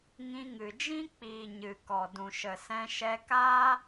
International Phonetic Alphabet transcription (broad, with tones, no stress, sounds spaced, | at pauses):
ŋ ĩ˧ ŋ ɨ˨ d͡ʒ ĩ˦ k͡p iː˨ ɲ ɨ˨ k ɔ˨ d ũ˨ ʃ ə˨ s ɛ̃˧ ʃ ɛ˧ k a˦